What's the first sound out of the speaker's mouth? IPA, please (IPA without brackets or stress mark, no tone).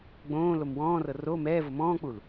ɡ͡b